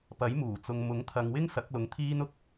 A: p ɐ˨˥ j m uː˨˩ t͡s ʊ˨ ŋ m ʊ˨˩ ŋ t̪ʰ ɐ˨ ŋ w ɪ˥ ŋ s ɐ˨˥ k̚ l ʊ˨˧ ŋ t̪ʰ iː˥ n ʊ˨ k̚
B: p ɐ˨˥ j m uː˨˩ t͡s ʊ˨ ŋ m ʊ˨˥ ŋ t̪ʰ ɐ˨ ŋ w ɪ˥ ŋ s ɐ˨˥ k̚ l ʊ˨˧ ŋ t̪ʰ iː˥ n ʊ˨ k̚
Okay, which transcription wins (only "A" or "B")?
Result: B